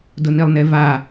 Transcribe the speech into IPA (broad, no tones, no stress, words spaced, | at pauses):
dʊnilˠneva